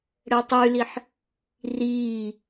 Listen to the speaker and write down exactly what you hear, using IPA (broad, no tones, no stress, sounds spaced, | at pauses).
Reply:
ɽ ɛ tˤ y l i ħ | r iː